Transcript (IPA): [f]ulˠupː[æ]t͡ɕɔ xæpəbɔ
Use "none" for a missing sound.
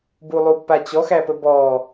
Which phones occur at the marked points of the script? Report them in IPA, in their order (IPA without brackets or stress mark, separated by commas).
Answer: b, a